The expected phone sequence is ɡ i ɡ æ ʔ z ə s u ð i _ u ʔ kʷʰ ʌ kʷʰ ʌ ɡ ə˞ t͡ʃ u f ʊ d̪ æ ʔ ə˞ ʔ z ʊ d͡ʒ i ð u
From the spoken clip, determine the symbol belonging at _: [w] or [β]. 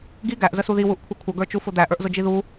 w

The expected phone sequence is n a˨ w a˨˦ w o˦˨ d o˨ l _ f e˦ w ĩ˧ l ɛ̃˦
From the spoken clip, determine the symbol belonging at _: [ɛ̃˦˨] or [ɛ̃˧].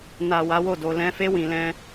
ɛ̃˧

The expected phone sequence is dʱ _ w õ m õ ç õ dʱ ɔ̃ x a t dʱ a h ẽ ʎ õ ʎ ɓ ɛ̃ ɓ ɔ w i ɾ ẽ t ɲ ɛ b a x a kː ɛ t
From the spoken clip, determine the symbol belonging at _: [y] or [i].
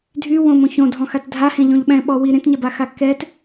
y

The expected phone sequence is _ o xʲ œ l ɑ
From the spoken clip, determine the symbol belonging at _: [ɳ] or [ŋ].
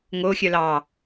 ŋ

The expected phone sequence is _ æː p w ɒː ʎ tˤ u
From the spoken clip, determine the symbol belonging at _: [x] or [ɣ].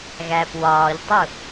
ɣ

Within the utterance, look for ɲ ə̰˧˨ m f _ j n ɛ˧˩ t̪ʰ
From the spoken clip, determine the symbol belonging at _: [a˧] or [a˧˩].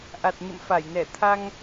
a˧˩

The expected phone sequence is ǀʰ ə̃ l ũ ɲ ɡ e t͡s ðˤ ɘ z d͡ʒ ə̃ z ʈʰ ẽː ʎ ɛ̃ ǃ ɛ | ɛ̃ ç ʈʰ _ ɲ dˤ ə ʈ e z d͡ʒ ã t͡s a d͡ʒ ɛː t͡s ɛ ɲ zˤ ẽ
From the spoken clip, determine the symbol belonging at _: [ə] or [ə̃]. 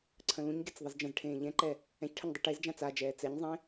ə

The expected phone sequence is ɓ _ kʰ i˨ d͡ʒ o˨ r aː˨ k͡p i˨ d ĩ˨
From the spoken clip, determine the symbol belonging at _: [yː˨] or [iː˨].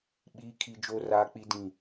iː˨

